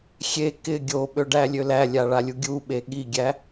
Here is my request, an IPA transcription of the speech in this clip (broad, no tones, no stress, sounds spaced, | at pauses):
xʲ e k ɪ ɡʲ o ɓ ø ɖ æ lʲ ø l æ lʲ a ɭ a lʲ u ɡʲ u ɓ e ɠ i ɡʲ æ